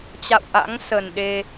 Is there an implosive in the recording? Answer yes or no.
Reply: yes